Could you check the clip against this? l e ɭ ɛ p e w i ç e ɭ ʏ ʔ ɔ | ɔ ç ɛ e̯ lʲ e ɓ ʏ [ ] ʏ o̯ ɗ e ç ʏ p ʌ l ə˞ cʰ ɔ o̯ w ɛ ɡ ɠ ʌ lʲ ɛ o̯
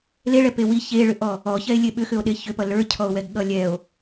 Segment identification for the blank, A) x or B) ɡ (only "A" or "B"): A